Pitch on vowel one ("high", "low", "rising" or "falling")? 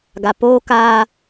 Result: low